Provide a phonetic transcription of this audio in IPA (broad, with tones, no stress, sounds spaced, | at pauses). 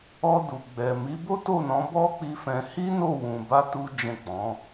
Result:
ɔ˧ d u˨ ɡ͡b ɛ˨ m i˨˦ b o˦ t o˦˨ n ɔ̃˨˦ b ɔ˦ k͡p i˧ f ɛ̃˧ h i˦ n o˦˨ w ũ˨ b a˧ t u˦ d͡ʒ ɛ̃˦˨ k͡p ɔ̃˨˦